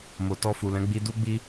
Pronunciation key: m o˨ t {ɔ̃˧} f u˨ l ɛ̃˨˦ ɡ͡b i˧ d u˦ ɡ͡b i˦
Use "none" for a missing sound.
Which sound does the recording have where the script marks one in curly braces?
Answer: ɔ˧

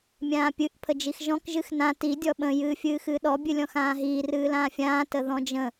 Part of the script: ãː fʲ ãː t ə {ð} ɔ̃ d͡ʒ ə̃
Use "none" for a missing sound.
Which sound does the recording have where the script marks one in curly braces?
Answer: ð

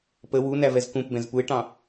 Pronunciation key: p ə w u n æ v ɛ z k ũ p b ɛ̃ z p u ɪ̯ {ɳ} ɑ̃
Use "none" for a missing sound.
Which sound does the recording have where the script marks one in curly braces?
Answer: ʈ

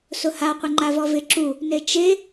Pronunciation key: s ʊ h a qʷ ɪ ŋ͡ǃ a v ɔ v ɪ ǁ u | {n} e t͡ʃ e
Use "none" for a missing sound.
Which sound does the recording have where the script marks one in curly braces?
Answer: n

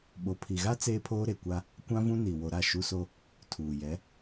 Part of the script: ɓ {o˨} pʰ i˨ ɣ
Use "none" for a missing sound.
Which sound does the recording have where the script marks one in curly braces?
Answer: o˨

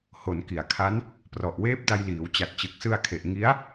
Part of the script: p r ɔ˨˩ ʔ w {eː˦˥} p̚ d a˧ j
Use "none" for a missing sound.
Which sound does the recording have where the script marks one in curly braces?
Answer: eː˦˥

